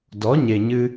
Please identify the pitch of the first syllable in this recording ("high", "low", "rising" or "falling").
rising